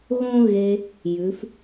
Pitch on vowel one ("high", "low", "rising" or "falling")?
high